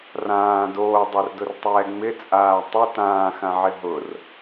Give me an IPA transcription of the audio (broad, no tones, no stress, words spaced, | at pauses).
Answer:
rãː doːdˤordʊrtˤɛː ŋ͡mɪt͡sʼaː tˤo tãːxãʕɪ ɦʊr